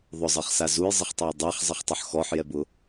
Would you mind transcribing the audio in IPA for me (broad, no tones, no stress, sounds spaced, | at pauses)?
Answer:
ðˤ ʊ zˤ ɜ χ s a z u j zˤ ə χ tˤ ɛ j dˤ a χ zˤ ə χ tˤ ʊ ħ x ɔ ħ j ɛ b ʊ